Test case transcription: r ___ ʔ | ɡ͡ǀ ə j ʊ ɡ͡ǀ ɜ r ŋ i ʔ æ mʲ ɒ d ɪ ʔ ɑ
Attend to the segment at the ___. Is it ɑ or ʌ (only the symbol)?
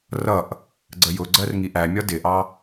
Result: ʌ